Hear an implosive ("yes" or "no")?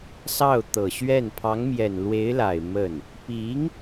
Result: no